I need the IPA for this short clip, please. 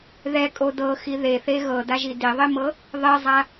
ð ɛ kʼ o d ɤ x i ð e θ e ɣ ɤ d a ʒ i d i ðˤ i m ɤ | ðˤ e zˤ a

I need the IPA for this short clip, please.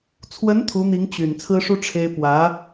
t͡sʰ w ə˧˥ n t̪ʰ u˧˥ n̪ i˧˥ ŋ t͡ɕ y˨˩ n t͡sʰ ɹ̩˥ ʂ u˥ ʈ͡ʂʰ e˥ ɪ̯ p w ä˧˥

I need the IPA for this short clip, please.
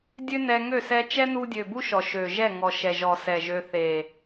dʲ ø˦ n ɛ˧ ŋ ø˦˨ s ɛ˧ t͡ʃ ɛ˦ n u˧ dʲ ø˨ b u˦ ʃ ɔ˨ ʃ ø˨ ʒ ɛ˦˨ ŋ ɔ˨ ʃ ɛ˨ ʒ ɔ˨ s ɛ˨ ʒ ø˧ θ e˨

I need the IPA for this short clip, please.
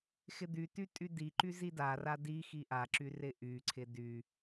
x ɪ d̪ y t y tʼ y d i ǃ y z i d a r a d i x i ʔ a ǁ y r ɪ ʔ y ǀʰ ɪ d y

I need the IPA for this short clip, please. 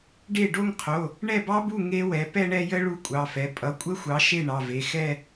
ɖ e˥˩ ɖ o˥˧ ŋ qʰ o˩˧˩ | ɳ ɛ˥˩ b ɑ˦˥ b u˥˩ ŋ e˦˥ w ɛ˩˥ p ɛ˥˧ ɳ ɛ˥˧ j ə˦˥ ɭ u˥˧ kʷʼ ɑ˩˧˩ f ɛ˩˥ pʼ ʌ˩˥ kʷʼ ə˦˥ xʷ ɑ˩˥ ʃ e˥˩ ɳ ɑ˩˧˩ v e˩˧˩ x ɛ˥˧

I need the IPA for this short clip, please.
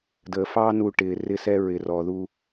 d əː˨ f ɑː˦ n u˧ ʈ ɪː˨ r ɪ˧ s ɛ˧ ɹ ɪ˨ r ɔ˨ ð u˧

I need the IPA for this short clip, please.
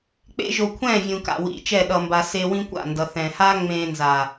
k͡p ḛ˦ ʒ o˧ kʷʰ ɛ̃ː˦˨ vʲ ũ˨ k a̰˨ w ḭ˨ t͡ʃ ɛ˦˨ ɗ ʌ˧ m b a˧ s e˧ w ĩ˦ kʷ a̰˦˨ n d ʌ˨ θ ɛ̃ː˨ h aː˦ ŋ͡m ẽː˧ n z aː˨

